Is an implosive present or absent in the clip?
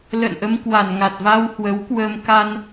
absent